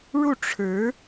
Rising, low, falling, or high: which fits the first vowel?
falling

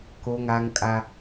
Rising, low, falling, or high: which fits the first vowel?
high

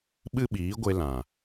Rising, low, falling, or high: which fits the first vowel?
high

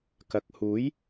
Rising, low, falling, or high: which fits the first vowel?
rising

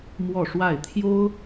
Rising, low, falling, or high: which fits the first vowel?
falling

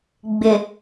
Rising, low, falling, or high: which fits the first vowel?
low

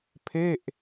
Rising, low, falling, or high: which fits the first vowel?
falling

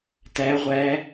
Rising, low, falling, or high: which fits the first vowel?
rising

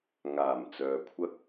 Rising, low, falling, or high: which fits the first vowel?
low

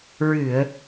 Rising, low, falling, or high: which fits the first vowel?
low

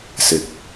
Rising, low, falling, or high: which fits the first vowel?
rising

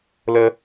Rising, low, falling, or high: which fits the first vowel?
high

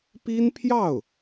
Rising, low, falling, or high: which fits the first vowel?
high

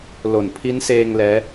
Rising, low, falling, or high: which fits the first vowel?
low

